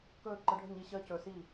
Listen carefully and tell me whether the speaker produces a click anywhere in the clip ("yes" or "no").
yes